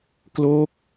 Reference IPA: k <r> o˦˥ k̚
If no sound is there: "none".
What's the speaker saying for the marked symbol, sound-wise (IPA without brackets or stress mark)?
l